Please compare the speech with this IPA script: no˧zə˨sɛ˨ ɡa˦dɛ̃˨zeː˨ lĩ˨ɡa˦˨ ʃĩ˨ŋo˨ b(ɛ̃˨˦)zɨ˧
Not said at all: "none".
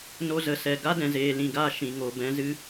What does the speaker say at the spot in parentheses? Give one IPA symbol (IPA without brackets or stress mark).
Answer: ɛ̃˨˦